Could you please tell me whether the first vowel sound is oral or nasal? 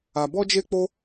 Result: oral